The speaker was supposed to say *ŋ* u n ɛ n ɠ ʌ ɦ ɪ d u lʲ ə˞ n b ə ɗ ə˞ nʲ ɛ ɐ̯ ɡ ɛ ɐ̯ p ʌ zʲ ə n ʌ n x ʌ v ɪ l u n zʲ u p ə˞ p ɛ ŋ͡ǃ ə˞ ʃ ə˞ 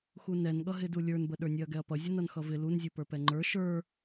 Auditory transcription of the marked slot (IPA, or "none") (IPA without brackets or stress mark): x